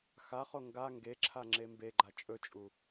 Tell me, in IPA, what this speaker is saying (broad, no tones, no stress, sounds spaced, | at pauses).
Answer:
x a χ o ŋ ɡ a ŋ ɡ e ǁʰ a ŋ͡ǁ e m b e ɡ͡ǃ a t͡ʃʼ ɵ t͡ʃʼ u